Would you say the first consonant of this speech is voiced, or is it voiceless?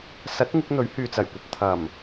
voiceless